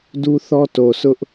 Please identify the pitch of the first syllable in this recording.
high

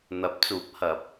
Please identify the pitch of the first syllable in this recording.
rising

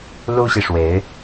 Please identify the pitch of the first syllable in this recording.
high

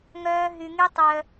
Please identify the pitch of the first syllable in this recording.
high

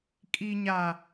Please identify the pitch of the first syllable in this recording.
low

